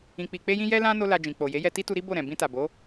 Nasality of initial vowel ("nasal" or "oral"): nasal